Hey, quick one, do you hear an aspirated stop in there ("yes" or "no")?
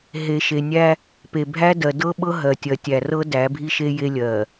no